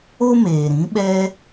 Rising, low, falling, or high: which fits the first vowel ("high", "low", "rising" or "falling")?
high